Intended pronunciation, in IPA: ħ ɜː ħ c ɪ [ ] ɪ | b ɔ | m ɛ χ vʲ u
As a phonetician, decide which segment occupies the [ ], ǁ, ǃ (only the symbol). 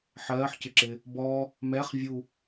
ǁ